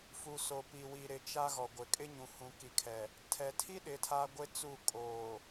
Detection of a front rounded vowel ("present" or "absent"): absent